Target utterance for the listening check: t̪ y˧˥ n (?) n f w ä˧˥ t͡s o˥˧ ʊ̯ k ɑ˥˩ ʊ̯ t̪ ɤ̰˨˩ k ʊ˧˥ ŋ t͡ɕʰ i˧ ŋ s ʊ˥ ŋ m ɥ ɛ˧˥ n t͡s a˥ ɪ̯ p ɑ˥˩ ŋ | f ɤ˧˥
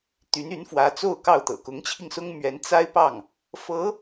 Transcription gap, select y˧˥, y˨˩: y˧˥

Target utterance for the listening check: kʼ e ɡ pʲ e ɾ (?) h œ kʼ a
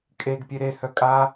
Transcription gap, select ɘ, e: e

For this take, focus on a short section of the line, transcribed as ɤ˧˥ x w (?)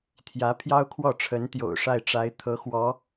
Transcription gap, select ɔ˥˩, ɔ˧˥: ɔ˧˥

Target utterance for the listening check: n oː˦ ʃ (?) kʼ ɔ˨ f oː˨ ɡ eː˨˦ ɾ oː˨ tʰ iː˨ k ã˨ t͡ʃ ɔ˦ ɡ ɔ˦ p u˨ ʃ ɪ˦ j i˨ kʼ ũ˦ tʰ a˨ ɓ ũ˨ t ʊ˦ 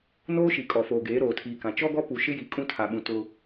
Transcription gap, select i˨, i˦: i˨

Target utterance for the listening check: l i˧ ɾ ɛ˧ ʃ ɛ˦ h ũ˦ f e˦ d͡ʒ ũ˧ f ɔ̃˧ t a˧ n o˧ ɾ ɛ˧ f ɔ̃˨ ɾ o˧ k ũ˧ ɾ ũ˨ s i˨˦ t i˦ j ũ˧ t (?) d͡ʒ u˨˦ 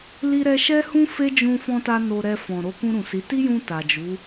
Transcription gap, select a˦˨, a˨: a˨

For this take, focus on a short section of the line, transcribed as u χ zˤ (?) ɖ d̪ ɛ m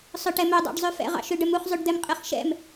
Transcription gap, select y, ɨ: y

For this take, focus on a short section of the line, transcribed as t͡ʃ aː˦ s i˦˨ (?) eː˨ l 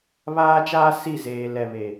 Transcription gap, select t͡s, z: z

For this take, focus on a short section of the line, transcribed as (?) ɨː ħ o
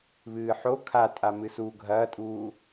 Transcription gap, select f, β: β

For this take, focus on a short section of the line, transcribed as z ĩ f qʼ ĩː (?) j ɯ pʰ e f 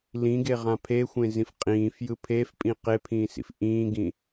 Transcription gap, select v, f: f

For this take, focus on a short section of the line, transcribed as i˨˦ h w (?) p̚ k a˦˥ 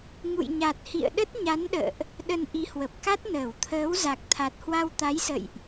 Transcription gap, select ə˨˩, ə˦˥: ə˨˩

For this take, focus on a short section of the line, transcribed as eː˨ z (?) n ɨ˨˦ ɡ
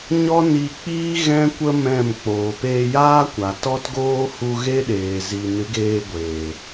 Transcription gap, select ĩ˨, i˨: i˨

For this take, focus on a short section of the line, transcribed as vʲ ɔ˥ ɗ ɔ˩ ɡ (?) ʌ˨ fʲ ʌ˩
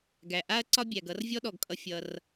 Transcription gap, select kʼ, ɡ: kʼ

